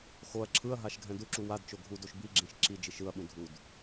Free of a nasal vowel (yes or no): no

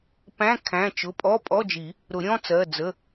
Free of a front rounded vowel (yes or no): yes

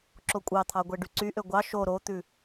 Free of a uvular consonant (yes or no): yes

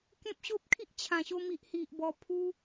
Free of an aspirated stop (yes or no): no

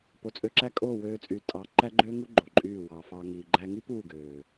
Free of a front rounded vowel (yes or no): no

